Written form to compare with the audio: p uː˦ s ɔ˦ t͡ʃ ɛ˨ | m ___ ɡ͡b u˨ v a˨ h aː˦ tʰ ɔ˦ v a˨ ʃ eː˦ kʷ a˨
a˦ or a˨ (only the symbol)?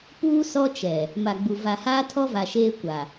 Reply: a˨